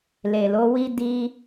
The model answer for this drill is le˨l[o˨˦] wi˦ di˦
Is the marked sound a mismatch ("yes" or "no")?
no